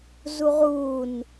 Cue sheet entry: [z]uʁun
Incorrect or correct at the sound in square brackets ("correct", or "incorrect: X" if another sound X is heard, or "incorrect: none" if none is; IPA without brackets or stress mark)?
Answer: correct